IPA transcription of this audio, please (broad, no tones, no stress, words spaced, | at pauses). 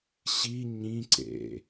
ɕi ɲĩǀḛ